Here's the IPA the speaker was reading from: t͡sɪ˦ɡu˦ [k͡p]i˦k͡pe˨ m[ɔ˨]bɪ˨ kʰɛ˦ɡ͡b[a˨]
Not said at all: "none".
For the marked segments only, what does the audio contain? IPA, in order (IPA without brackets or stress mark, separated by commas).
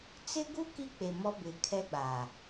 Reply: k, ɔ˦, a˨